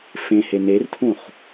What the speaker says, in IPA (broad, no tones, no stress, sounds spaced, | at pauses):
f ẽ h e n e r tʰ ũ χ